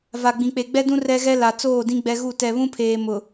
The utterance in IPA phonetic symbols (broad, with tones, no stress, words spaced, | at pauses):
va˨ ɡ͡bĩ˨k͡pe˨ ɡ͡bɛ˦dũ˦ rɛ˦ɣɛ˦la˨ t͡soː˦˨dĩ˦ ɡ͡bɛ˦ɣu˦˨ tɛ˨βũ˦pʰeː˨ mʊ˨